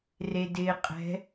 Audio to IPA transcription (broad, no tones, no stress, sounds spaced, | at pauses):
r e d ɪː qʼ ɛ̤